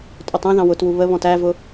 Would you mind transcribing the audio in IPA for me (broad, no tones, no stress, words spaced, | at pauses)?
tʼʊtˤɛ̃ðɑ̃ wʊtwu βəβɔ̃t ævʊ